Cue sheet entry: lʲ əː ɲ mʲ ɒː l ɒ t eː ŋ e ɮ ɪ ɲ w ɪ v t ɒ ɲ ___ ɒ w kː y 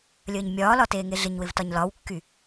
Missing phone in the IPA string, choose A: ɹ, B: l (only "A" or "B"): B